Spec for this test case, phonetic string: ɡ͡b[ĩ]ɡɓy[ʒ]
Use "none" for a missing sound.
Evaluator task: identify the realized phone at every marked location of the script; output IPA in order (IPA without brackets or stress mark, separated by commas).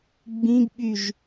ĩ, ʒ